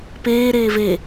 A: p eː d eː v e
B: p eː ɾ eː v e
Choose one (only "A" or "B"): B